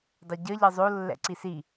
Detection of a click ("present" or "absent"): present